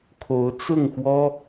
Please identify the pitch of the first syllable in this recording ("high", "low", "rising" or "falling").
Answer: rising